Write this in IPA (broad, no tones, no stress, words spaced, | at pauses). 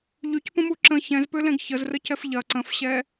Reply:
ʎycpə̃mu ǁə̃ çɛ̃zpølɛ̃ɡ çəzrəcɛf ʎɐ ǀə̃fɕɛ